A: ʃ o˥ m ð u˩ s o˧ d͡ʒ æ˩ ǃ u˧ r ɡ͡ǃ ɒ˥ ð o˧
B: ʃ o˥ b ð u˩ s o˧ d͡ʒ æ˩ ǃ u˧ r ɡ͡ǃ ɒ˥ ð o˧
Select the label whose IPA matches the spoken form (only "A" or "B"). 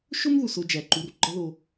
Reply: A